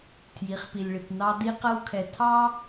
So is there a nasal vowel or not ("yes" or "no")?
no